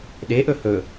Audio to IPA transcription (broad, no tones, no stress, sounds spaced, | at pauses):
ɗ e ʔ ɵ h ɵ